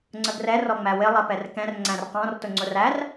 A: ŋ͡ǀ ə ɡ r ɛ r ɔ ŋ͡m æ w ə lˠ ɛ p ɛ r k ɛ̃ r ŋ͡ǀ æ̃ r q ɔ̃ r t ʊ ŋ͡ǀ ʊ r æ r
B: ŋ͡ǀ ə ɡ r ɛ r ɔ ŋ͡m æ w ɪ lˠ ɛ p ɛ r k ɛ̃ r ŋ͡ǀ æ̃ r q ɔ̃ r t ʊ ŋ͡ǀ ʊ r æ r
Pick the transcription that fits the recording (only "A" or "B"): B